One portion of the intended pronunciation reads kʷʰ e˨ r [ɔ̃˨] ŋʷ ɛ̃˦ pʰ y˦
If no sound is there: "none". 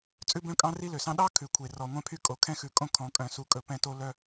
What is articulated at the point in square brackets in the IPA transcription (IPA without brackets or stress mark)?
ɔ˨